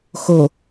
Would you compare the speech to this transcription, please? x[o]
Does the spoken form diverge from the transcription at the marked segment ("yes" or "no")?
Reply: no